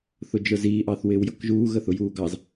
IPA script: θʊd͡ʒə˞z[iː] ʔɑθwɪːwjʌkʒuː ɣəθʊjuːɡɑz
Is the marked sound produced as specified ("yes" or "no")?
yes